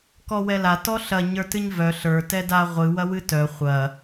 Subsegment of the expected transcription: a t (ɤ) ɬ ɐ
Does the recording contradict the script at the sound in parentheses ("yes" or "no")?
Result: yes